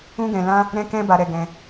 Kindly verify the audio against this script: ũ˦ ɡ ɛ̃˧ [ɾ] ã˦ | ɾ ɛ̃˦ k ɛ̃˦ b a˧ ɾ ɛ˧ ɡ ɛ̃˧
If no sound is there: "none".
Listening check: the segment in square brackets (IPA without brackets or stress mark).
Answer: l